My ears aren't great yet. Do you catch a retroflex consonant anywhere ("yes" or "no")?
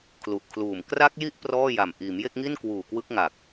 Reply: no